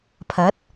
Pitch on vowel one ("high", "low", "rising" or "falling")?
rising